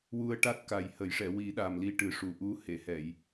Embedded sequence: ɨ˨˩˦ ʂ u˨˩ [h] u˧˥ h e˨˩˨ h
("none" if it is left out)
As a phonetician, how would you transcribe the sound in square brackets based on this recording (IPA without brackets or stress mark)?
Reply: ʔ